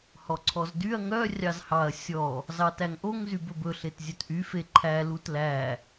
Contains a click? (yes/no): yes